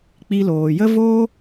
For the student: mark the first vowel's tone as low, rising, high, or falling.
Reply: high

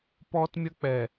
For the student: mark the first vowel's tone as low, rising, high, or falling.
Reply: high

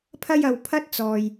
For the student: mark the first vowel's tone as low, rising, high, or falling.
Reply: high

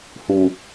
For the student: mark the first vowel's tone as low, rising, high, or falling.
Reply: low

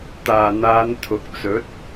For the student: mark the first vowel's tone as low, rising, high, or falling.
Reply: low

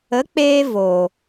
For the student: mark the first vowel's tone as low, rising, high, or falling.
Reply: rising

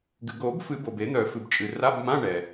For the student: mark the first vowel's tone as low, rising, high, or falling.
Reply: low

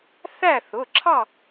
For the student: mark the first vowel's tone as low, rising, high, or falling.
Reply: falling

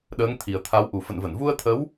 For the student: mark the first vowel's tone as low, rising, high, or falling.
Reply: rising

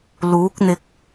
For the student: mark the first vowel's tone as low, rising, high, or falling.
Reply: rising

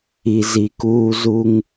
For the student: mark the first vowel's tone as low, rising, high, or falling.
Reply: low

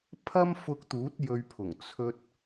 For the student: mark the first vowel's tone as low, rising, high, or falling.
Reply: high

